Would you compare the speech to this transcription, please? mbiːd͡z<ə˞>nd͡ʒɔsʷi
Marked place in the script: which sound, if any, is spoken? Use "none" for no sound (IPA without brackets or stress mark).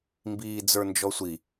ə˞